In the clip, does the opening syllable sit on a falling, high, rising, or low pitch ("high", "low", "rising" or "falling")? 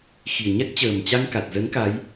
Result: low